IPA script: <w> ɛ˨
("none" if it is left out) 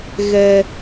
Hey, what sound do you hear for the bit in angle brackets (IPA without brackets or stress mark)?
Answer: ɣ